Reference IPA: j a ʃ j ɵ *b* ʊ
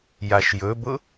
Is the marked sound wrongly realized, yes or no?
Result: no